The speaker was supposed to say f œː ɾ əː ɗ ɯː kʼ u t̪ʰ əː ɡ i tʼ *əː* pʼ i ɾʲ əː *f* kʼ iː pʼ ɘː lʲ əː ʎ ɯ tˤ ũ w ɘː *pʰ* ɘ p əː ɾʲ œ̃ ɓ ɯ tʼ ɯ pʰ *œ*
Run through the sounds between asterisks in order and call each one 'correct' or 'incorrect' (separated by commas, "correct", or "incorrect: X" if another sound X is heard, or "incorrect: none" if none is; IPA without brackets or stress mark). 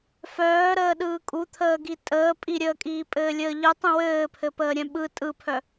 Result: correct, incorrect: none, correct, correct